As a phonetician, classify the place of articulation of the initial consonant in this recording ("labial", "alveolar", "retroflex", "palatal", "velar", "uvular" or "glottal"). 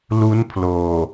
alveolar